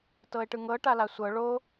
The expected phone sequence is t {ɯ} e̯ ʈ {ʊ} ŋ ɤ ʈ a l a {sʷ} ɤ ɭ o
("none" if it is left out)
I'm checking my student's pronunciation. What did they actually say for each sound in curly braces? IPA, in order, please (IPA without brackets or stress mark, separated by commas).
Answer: ɤ, ɯ, sʷ